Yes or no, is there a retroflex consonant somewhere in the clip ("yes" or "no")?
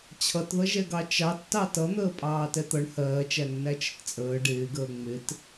yes